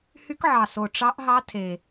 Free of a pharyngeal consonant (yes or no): no